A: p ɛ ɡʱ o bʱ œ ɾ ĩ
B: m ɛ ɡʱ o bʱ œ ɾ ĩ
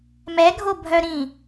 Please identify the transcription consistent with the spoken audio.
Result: B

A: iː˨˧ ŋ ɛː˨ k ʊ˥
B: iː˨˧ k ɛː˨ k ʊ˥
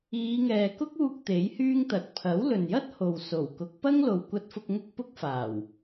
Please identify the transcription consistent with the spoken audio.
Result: A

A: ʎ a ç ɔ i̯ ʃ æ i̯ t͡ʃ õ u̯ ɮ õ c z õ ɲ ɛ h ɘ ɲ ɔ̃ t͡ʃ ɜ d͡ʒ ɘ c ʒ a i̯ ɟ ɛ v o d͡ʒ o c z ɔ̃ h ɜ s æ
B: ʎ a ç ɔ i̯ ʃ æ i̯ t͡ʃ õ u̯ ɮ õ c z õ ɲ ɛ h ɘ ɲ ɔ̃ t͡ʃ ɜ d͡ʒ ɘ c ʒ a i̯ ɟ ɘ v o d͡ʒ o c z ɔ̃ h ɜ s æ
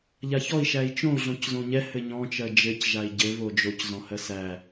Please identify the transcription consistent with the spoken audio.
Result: B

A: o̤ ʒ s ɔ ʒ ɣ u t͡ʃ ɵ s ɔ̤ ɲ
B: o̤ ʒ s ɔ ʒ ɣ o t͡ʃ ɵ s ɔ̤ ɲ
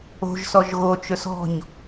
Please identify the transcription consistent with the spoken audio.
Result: B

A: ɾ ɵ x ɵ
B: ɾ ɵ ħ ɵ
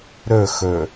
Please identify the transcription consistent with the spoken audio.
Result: A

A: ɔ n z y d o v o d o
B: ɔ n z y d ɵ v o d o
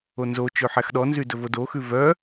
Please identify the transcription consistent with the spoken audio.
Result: B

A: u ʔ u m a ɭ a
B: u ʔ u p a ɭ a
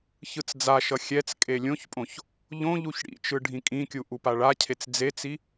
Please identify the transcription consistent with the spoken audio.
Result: B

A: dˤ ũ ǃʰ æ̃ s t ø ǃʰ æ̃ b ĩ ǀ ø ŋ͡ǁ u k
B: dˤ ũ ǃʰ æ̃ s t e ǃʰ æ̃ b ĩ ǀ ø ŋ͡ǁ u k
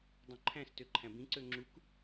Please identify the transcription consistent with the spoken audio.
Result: A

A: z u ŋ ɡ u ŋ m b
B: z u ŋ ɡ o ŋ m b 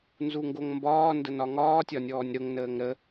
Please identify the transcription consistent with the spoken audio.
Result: B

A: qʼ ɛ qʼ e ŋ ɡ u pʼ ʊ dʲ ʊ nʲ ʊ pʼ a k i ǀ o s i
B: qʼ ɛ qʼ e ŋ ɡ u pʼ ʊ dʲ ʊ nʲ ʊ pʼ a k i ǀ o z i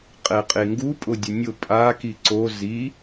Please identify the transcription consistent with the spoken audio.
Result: B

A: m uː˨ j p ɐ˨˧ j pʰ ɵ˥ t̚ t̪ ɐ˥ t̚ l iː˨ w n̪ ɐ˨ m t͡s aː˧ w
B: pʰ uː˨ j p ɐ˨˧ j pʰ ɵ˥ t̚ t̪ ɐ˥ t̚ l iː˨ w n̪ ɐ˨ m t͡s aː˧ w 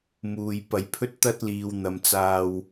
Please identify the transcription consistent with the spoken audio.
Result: A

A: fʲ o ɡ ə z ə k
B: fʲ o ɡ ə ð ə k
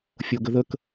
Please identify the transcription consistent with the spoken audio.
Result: B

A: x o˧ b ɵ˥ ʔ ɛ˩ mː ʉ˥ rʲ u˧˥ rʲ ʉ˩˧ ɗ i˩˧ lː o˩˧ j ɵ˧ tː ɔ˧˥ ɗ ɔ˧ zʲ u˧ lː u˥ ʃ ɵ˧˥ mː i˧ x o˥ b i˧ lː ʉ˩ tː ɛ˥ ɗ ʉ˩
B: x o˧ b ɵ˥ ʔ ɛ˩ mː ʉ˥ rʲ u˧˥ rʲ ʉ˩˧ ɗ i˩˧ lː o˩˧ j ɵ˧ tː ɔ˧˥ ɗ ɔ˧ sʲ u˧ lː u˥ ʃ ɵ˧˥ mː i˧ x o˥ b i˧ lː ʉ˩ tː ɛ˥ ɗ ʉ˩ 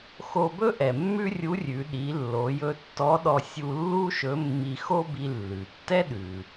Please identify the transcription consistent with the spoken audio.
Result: B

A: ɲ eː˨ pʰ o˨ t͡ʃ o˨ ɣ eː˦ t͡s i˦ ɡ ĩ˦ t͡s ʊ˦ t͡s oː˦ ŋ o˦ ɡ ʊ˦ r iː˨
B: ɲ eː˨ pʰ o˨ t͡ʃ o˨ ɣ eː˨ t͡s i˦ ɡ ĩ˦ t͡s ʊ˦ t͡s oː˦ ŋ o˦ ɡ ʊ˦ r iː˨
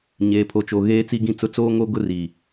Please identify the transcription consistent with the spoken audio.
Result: A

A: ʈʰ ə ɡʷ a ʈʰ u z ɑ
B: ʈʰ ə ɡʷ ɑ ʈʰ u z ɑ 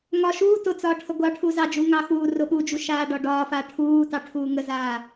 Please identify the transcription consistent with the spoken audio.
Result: B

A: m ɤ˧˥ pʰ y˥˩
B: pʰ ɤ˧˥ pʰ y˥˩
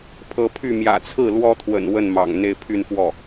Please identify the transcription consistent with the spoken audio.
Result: B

